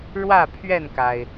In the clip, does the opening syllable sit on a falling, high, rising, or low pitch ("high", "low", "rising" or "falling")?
falling